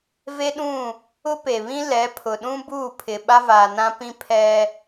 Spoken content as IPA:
v e˦ ɗ ũ˦˨ | ʊ˦ p e˨ β ĩ˦ l ɛ˨˦ pʰ ʊ˨ ɗ ũ˦ b uː˦˨ pʰ ɪ˨ ɓ a˦ v aː˨ n ã˦ p ĩ˦ pʰ ɛ˦

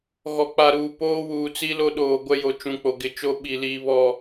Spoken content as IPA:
ɣ ɔ˨ k͡p a˨ ɾ uː˨ p oː˦ w uː˨ t͡s i˦ l o˦ ɗ oː˨ ɡʷ ɛ˦ j o˨ t͡ʃ ũ˨ k͡p o˨ ɡ ɪ˨ t͡ʃ o˦ ɓ i˨ l iː˨ β ɔ˨

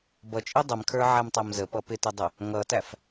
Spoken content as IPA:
b ʌ t͡ʃʼ i dˤ ə m kʰ ə˞ ʕ æ m tˤ æ m z ə p ʌ p ɪ t ə dˤ ə | ŋ ʌ t æ f

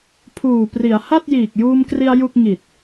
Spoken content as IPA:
pʰ uː˨˩ p r i˩˦ a̯ h a˥˩ t̚ j iː˨˩ k̚ j uː˧ m k r i˧ a̯ j u˥˩ k̚ ŋ i˨˩ t̚

